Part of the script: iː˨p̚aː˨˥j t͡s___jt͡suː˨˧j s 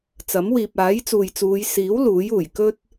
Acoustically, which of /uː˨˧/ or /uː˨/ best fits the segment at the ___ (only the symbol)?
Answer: uː˨